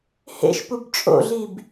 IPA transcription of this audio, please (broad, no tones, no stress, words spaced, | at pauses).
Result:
hḛʃpub t͡ʃʼo̰ɮib